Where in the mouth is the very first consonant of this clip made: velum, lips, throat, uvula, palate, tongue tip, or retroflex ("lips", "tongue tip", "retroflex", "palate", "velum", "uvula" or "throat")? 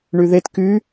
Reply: retroflex